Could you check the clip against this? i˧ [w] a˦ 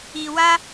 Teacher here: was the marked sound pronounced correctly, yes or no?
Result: yes